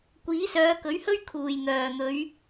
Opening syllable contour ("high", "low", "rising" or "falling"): rising